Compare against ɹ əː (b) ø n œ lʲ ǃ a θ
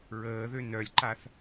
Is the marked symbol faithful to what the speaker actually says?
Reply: no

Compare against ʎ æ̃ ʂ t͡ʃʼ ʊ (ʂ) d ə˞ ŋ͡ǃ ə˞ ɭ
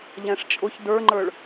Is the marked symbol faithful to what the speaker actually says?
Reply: no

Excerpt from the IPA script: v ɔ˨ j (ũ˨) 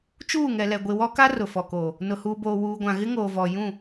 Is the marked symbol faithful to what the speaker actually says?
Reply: no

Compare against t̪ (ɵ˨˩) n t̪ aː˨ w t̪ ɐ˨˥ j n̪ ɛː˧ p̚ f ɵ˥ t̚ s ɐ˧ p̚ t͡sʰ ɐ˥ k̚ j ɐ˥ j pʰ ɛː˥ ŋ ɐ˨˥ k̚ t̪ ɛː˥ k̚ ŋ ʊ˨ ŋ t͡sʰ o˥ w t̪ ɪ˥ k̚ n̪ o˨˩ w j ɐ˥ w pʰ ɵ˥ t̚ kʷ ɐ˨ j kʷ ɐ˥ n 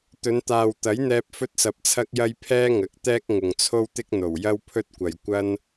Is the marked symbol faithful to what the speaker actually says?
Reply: no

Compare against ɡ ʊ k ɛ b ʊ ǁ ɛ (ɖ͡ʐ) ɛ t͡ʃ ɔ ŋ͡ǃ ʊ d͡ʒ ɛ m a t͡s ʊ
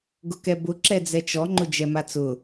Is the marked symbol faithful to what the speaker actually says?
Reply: no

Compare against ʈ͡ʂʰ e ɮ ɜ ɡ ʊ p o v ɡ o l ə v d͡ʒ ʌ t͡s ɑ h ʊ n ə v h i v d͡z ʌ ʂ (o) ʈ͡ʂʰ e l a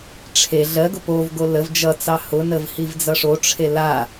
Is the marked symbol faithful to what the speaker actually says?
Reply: yes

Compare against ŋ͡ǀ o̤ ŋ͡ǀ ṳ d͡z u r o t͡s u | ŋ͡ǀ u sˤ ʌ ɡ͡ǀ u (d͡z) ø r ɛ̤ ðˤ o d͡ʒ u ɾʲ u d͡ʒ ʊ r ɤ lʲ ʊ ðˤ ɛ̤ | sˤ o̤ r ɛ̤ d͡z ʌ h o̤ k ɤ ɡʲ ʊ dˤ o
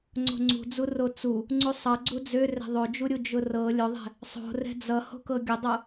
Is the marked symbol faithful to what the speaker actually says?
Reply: yes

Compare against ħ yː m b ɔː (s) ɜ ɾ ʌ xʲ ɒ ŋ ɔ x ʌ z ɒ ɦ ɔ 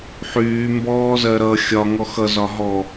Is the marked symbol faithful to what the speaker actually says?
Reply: no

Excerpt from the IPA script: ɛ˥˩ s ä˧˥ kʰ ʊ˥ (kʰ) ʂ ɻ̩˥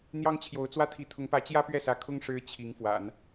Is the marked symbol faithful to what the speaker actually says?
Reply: no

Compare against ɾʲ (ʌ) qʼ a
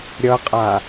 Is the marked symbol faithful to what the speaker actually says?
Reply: yes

